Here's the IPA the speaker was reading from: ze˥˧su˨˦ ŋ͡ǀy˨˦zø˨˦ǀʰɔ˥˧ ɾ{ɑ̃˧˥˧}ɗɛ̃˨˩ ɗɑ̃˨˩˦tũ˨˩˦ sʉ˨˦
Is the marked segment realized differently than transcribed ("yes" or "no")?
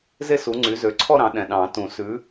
yes